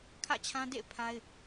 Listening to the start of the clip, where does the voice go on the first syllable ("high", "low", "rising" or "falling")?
falling